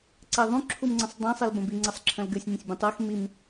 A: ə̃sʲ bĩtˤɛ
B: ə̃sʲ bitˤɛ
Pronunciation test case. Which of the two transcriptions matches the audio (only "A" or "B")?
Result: A